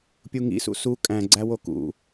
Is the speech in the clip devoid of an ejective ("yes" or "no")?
no